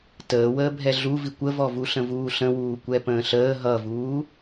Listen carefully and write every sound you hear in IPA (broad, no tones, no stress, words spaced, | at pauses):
təːwəːbʱɛ ɮuvikʷ əvɔvu ɬə̃vuːɬə̃wuː kʷɛpə̃ːɬəː ɦʌvuː